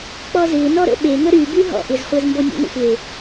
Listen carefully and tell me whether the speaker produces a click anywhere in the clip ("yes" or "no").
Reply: no